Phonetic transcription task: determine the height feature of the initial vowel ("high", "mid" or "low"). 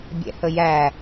mid